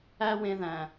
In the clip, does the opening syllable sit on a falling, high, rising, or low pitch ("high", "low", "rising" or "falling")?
high